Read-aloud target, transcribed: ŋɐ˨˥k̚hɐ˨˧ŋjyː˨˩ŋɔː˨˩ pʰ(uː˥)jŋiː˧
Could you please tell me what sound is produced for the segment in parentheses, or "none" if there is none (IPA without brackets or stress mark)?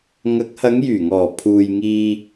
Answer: uː˨